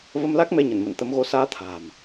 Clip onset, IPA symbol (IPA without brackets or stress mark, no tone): v